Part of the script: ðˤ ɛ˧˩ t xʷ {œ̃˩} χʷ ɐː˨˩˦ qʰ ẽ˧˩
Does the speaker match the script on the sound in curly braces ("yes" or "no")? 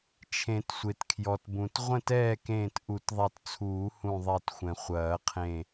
no